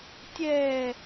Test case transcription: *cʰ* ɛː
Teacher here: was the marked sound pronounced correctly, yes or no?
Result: no